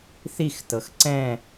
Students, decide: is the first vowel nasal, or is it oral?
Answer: oral